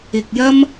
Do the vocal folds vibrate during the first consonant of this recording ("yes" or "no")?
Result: no